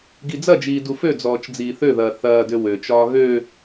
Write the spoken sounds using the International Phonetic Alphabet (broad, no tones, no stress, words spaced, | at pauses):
ɡid͡zɐd͡ʒiː dufød͡zɔːt͡ʃ d͡ziːθøðɐː θɐːdø wøt͡ʃɒː ɣø